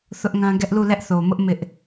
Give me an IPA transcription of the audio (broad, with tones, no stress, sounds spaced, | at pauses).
θ ʊ˦ ʔ ŋ ã˦ ɡ ɛ˦ ʔ l u˦˨ l ɛ˦ ʔ θ o˨ m ʊ˦ ʔ m ɪ˦ ʔ